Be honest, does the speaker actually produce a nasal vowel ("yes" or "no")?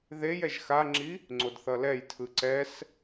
no